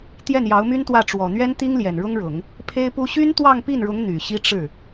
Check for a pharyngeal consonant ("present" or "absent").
absent